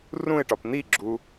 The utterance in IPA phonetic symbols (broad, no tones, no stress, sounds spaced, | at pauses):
r ũ ɪ̯ ʈ ɒ p n̪ i ɡ͡ǁ u